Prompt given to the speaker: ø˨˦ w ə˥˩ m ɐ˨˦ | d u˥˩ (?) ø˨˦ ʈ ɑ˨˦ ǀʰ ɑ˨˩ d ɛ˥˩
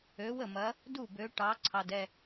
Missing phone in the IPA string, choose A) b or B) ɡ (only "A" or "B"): A